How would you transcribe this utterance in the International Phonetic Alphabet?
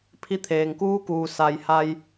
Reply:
pʰ i˧ t̪ʰ eː˩ ŋ k uː˧˥ k uː˩ s a˩ j h a˧ j

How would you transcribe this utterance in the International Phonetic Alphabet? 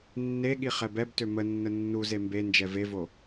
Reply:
nː e ɠ i χ ɛ b ɛ b t ø m ə nː ə nː u z e m b e n d͡ʒ ɛ v e v o

